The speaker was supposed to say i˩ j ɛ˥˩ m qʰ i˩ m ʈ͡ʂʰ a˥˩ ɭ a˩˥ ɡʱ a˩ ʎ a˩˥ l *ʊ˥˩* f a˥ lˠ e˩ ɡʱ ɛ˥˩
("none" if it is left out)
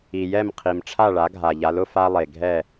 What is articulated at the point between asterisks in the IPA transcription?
ʊ˥˩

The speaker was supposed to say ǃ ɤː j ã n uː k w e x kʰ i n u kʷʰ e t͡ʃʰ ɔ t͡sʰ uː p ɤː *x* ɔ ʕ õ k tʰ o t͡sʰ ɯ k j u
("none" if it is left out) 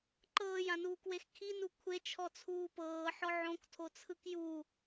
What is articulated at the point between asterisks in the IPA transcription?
ħ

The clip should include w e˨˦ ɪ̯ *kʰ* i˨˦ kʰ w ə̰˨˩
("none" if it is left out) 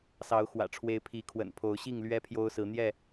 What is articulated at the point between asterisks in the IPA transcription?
pʰ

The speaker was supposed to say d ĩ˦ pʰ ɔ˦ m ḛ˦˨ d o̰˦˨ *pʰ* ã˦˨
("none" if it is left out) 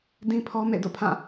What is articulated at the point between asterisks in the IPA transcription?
pʰ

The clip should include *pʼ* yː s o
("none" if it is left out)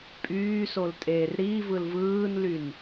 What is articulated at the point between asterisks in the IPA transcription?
pʼ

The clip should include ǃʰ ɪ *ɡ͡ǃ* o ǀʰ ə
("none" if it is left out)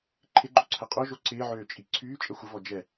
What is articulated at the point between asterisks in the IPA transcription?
ɡ͡ǃ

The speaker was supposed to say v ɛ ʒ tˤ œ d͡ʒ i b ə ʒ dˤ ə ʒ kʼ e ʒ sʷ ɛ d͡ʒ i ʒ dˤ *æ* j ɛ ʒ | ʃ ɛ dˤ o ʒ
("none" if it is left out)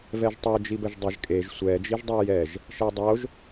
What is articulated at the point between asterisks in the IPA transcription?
œ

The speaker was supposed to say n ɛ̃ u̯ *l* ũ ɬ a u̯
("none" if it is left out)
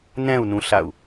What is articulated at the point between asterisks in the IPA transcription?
n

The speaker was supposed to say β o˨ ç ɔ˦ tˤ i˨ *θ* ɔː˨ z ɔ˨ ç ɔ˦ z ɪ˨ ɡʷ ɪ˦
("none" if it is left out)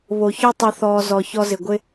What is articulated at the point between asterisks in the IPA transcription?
θ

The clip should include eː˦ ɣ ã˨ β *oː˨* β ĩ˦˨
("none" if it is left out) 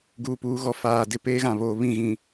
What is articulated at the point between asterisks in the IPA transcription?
oː˨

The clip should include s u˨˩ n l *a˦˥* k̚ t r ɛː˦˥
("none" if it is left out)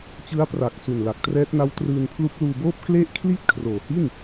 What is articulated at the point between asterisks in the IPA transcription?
a˨˩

